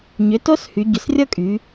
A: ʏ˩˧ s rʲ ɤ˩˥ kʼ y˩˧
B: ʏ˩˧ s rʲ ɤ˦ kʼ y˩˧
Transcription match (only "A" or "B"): B